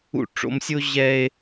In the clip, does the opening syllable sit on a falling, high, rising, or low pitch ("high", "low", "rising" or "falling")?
high